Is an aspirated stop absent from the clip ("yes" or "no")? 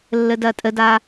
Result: yes